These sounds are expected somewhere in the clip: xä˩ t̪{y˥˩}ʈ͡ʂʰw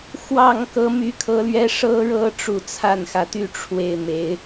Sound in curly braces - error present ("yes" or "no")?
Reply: no